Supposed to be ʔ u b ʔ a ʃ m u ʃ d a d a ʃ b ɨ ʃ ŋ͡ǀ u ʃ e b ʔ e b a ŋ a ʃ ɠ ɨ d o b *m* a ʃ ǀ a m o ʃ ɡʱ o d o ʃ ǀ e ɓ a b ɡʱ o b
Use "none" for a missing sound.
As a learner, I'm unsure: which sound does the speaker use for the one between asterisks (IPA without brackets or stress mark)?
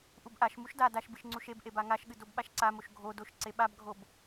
ɓ